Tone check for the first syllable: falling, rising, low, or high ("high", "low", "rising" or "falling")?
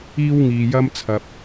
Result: high